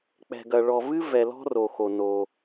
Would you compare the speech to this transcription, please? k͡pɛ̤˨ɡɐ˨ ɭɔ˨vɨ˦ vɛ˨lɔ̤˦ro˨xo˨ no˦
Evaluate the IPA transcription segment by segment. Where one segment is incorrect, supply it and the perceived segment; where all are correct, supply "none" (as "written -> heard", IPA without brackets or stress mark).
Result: none